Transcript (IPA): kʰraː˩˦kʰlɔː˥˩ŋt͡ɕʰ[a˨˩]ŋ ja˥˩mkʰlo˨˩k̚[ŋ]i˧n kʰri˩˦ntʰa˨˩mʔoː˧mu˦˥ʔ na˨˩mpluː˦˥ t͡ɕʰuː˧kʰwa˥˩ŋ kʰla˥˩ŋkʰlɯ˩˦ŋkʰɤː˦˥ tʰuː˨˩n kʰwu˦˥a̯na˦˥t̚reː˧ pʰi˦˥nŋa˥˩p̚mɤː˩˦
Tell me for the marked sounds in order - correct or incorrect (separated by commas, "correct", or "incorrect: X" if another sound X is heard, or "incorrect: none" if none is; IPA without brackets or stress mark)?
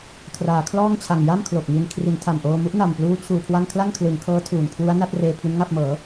correct, correct